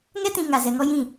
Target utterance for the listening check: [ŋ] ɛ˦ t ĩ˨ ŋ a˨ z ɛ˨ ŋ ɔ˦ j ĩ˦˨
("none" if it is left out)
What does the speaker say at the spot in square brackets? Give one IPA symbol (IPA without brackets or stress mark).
ŋ